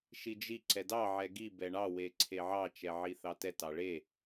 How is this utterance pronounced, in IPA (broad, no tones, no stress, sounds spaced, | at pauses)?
ʃ i d͡ʒ i ǀ ɛ d ɑ ʕ ɛ ɡ i b ɛ ɳ ɑ w e ǀʰ e ʕ ɑ t͡ʃ ɛ ʕ i θ ɑ t ɛ t ɑ ɭ e